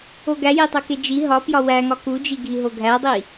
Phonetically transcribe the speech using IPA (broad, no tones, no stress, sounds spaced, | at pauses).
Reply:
o ɡ æ j e tˤ o k e d͡ʒ i ɦ ɒ p j ɒ w æ ŋ ɒ k u d͡ʒ i ɡʱ i ɦ o ɡʱ æ dˤ i